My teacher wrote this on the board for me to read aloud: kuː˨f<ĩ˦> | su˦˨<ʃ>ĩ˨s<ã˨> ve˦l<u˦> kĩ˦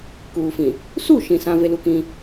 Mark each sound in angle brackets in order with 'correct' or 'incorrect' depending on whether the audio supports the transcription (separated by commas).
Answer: incorrect, correct, correct, correct